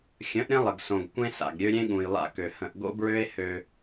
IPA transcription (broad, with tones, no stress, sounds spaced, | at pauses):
xʲ ə̃˨˦ ʔ ɾʲ ə̃˦ lˠ ə˨ ɡ s õ˨ ɡ kʷ ẽ˦ s a̰˨ ɡ ɾʲ ø˦ ɾʲ ẽ˦ ɠ ũ˨ j lˠ a̰˦˨ k ø˨ h ə̃˨ ʔ ɡ o̰˦ b ɹ ø˦ e̯ h ø˦